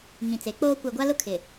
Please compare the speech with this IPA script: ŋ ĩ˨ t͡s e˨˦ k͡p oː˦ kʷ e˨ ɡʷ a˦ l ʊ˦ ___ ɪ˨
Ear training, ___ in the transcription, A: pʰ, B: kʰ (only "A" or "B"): B